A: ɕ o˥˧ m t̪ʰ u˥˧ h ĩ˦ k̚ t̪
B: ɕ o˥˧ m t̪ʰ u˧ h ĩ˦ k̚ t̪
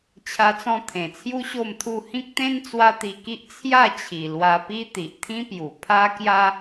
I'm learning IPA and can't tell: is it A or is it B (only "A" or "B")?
A